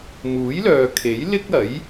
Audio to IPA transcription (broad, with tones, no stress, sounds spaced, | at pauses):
m uː˨˥ j l œː˨ kʰ e˨˥ j l ɪ˥ k̚ ɐ˨˥ j